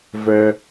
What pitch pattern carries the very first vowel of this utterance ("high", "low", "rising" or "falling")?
high